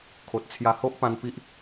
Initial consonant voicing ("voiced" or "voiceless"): voiceless